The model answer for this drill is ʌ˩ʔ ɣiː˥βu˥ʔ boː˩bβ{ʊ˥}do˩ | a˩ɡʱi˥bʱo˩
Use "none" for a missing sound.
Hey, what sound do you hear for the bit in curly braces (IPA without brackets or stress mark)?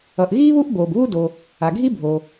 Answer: u˥